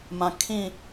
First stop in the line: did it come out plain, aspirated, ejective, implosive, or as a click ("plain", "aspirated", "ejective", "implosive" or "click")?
aspirated